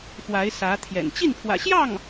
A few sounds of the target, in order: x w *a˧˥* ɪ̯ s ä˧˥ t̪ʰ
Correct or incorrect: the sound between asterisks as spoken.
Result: correct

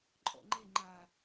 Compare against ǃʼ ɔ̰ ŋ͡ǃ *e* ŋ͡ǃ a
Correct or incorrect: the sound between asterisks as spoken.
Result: correct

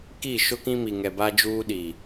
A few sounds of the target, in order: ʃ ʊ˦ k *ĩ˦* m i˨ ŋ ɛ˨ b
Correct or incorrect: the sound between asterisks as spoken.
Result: correct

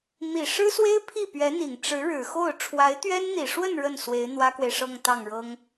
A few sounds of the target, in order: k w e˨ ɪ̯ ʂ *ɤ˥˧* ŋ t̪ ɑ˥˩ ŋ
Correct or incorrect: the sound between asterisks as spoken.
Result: correct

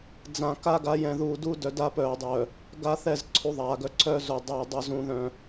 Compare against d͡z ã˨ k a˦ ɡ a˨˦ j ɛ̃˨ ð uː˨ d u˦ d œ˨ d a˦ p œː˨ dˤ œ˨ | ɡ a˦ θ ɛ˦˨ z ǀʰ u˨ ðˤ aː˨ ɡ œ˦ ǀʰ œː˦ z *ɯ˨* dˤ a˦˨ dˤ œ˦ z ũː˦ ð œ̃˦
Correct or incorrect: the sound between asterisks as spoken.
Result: incorrect: u˨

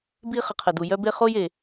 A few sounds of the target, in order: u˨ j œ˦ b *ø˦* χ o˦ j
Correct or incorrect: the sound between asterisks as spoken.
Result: incorrect: e˦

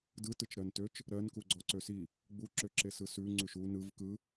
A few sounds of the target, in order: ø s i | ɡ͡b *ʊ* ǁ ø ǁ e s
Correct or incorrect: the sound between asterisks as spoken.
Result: incorrect: u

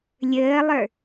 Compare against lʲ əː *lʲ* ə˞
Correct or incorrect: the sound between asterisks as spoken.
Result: incorrect: lˠ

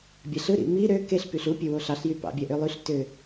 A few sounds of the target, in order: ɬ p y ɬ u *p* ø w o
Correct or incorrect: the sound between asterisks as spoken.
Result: incorrect: pʲ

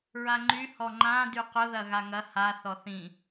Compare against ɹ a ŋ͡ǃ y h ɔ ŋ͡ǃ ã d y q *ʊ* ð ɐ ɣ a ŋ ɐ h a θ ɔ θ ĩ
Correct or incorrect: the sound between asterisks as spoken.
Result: correct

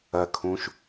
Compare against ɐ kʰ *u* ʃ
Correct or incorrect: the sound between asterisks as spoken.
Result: incorrect: ũ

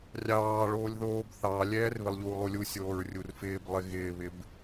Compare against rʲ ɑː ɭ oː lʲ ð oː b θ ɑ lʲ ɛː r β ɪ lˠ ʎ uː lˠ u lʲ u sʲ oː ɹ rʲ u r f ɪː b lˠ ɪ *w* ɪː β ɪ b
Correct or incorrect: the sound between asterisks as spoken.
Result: incorrect: ɣ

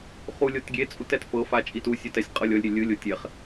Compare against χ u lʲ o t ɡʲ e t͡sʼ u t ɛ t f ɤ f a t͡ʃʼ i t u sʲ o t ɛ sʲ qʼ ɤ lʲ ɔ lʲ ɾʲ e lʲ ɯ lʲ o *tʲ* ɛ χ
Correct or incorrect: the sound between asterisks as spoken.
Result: correct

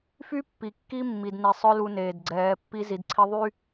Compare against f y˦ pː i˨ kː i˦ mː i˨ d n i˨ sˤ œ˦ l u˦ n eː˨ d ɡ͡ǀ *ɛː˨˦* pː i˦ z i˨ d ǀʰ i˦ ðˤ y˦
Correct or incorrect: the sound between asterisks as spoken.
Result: correct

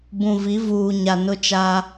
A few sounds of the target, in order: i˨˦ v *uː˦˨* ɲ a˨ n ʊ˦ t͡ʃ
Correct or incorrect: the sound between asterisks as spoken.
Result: incorrect: uː˨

